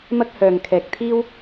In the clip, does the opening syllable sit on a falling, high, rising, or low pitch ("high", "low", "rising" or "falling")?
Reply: high